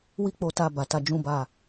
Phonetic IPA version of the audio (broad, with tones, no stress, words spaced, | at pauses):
wi˦k͡po˧ta˧ ba˨ta˧d͡ʒũ˦ba˦˨